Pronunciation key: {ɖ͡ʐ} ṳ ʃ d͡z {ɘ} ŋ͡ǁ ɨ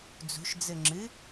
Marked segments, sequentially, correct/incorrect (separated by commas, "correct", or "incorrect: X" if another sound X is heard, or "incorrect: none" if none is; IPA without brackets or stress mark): incorrect: d͡z, correct